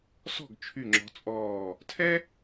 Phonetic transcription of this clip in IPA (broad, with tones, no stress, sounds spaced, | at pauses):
s ɔ̤˥˩ ɡ t͡ʃʰ y˧˩ ŋ͡ǁ ɔ̤˨˦ t͡sʼ ɔː˧˩ | tʰ ɛ˥